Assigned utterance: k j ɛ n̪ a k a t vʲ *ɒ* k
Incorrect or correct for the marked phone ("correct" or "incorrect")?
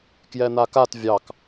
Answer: incorrect